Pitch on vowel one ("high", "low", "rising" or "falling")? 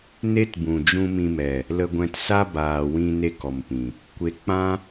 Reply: high